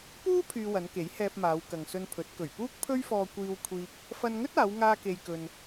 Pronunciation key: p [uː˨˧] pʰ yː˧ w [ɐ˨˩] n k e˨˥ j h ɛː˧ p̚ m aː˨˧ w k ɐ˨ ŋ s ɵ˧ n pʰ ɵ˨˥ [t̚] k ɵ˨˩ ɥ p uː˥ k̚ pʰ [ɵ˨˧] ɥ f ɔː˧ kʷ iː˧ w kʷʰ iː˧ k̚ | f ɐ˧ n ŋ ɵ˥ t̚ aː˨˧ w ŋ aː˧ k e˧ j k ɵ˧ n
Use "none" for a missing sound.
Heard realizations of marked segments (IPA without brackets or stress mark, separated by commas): uː˥, ɐ˨˧, t̚, ɵ˥